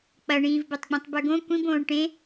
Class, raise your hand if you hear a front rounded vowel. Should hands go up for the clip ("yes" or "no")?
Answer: no